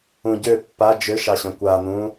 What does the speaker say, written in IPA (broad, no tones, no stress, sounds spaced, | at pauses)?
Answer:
ũ ɟ ø pː a d͡ʒ ø ʃ ɑ ɕ œ̃ kʷ a n̪ ũ